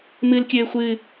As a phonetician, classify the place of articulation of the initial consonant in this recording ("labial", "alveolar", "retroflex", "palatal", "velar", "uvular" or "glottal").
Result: labial